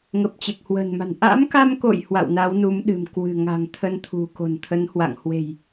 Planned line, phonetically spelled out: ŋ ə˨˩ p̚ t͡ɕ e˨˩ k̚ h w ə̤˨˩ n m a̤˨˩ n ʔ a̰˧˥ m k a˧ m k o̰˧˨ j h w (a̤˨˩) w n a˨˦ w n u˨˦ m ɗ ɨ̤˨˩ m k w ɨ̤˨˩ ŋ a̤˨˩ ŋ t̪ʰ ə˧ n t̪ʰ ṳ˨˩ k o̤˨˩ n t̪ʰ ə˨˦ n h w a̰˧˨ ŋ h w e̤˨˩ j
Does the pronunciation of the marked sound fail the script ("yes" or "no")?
yes